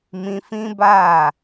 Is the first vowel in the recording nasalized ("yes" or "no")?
yes